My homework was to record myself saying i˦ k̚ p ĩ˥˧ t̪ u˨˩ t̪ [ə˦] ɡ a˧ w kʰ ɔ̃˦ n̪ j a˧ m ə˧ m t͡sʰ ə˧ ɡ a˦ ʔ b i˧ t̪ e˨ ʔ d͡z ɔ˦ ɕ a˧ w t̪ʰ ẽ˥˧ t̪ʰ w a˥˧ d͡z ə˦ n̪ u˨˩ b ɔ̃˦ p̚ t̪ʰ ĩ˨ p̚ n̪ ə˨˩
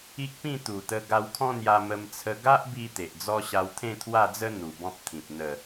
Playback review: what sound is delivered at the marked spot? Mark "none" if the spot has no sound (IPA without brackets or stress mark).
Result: ə˧